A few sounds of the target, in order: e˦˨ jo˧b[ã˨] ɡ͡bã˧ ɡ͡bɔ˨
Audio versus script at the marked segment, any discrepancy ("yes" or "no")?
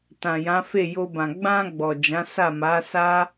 no